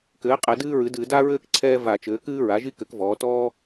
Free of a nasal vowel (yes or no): yes